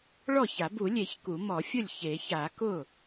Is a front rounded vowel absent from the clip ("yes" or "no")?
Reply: yes